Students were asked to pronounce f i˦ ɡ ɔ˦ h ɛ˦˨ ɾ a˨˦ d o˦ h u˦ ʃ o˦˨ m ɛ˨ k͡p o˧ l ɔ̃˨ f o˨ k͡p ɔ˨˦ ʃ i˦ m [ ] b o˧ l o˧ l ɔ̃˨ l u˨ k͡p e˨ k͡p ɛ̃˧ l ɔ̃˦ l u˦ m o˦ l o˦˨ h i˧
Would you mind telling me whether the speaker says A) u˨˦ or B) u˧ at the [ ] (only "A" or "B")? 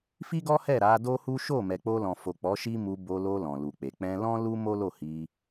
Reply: B